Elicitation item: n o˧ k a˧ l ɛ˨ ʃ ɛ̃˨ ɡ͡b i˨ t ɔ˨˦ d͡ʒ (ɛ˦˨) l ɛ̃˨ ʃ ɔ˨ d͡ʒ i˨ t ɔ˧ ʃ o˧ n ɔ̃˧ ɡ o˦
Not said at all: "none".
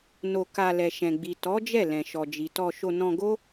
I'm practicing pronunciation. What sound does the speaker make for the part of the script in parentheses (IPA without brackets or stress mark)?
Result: ɛ˦˨